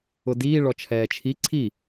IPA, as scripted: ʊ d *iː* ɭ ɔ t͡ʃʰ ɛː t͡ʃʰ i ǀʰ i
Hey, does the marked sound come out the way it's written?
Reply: yes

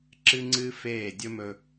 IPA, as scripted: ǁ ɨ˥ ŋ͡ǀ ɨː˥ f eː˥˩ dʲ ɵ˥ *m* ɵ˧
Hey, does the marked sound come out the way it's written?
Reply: yes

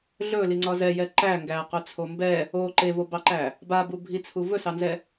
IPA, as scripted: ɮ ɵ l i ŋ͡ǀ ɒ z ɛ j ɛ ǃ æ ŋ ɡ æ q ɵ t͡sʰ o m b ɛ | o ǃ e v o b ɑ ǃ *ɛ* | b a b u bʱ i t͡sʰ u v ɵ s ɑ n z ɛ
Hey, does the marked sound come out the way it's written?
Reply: no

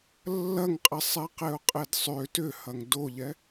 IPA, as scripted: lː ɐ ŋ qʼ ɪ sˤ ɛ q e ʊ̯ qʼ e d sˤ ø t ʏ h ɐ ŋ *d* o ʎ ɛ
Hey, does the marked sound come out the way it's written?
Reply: yes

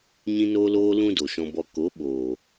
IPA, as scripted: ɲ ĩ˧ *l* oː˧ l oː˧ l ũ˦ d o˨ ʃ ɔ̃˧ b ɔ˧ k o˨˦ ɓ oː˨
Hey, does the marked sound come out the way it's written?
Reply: no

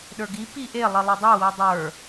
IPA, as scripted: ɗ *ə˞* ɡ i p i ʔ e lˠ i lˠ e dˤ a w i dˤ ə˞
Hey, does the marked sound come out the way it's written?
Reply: yes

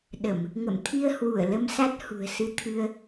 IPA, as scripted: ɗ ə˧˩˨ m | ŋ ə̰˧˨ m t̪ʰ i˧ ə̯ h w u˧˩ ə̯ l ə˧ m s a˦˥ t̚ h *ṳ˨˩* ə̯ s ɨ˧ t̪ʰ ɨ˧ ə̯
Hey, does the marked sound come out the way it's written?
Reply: yes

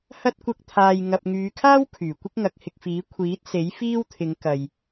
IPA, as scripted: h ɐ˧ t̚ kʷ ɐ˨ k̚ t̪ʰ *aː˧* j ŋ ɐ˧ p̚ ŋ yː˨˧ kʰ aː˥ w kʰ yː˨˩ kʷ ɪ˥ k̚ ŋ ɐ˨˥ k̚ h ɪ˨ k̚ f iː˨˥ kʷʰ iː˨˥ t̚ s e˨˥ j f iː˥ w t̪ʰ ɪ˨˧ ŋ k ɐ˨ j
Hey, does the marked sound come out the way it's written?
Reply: yes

